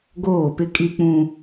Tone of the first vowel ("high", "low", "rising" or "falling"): falling